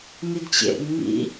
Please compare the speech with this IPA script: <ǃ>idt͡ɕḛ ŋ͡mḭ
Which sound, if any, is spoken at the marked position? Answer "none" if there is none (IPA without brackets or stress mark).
n